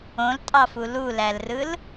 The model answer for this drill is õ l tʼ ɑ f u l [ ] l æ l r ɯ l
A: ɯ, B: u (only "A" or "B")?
B